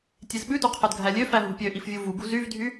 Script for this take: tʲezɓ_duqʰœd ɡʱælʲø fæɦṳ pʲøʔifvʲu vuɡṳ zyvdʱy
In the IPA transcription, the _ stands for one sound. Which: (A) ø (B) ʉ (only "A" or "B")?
B